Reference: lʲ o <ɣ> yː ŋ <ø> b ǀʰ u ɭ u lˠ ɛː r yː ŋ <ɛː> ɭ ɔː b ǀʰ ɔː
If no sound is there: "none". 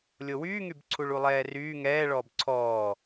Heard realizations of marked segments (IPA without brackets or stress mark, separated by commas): w, y, ɛː